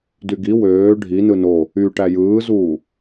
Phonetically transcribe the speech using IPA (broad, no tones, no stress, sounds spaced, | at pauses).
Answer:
d y ɡ i w øː ɖʱ i n ɯ n o | y ʈ æ j ɯː z uː